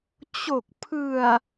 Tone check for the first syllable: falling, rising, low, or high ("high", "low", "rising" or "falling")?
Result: low